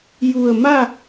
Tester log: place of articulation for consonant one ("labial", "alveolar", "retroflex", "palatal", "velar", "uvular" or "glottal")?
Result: palatal